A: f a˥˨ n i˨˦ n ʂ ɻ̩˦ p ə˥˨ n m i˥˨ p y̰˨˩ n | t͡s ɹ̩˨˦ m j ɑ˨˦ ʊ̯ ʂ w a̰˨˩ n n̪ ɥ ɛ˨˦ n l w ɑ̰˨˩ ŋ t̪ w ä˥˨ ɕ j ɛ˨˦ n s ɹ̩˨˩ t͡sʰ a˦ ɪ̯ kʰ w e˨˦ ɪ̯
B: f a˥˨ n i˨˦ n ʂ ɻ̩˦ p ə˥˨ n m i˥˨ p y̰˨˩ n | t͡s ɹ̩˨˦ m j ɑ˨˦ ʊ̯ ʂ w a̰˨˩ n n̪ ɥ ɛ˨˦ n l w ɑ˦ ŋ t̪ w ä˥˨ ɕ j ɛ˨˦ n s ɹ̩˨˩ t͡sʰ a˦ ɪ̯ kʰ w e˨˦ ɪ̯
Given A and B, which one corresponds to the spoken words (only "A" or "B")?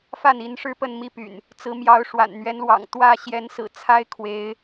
A